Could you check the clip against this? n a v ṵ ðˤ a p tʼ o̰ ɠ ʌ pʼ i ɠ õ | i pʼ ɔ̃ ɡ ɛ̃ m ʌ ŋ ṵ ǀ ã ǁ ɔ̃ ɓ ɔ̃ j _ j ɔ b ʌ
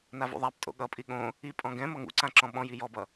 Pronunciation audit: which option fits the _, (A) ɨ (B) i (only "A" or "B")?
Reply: B